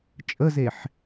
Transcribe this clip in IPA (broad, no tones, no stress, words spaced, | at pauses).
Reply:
t͡ʃʼəzeħ